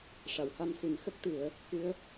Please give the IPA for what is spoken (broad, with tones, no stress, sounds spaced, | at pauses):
ʂ a˨˩˨ w h a˧ m s i˨˩˦ n x ə˦˥ k̚ t̪ ɨ˨˩˦ ə̯ | k ɨ˧˥ ə̯